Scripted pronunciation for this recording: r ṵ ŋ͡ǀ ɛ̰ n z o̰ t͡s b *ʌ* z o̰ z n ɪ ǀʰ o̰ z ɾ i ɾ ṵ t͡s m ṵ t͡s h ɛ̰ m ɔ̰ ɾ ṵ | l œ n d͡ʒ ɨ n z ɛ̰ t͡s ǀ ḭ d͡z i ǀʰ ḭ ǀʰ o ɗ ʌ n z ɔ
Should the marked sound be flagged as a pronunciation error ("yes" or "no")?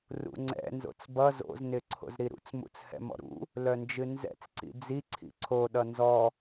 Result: no